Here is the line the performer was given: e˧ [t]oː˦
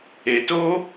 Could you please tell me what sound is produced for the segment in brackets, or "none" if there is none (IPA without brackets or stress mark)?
t